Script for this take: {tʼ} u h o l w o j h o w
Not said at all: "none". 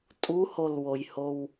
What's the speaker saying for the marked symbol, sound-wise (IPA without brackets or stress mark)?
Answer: tʼ